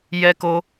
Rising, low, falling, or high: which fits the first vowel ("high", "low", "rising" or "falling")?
high